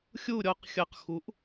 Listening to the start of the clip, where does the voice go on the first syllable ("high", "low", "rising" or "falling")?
falling